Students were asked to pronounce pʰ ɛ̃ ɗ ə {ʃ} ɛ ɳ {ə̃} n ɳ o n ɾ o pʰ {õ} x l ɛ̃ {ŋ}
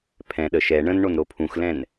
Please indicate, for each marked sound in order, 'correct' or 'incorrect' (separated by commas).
correct, correct, incorrect, incorrect